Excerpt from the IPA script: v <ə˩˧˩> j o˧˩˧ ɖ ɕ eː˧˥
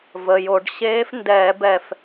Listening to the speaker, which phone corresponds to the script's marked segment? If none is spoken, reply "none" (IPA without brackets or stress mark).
ə˩˧˩